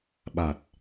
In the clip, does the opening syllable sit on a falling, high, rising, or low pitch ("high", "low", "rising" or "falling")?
low